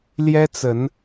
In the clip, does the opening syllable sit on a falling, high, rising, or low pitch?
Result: high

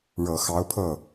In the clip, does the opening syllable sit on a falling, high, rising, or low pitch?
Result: low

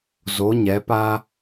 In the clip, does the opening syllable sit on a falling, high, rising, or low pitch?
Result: rising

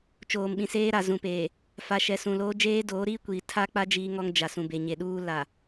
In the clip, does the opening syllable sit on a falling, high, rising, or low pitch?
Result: low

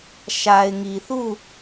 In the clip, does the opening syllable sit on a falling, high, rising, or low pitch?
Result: low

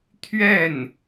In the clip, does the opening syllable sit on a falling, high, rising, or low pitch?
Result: falling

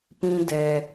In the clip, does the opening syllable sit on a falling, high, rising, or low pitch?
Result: high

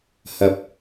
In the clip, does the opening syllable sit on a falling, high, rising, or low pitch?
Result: rising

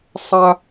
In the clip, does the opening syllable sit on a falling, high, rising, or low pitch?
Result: high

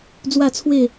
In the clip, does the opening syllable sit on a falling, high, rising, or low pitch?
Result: falling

